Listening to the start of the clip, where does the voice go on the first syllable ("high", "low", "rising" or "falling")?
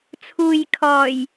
low